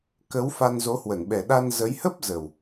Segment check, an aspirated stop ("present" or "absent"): absent